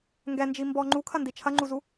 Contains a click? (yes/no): yes